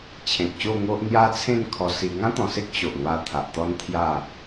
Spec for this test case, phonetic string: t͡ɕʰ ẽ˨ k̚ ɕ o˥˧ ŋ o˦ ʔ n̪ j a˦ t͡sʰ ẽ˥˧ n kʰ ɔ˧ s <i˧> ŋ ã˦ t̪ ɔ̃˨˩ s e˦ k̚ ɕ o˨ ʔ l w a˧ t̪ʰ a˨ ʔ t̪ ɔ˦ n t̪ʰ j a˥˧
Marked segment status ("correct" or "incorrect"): correct